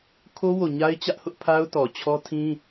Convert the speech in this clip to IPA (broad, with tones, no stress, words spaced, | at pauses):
kʰo˦wo˨ɲa˦ɪ̯ t͡ɕä˦ʔhʊ˦ʔ pʰa˦ʊ̯tɔ˨ t͡ɕʰɔ˦tʰĩ˦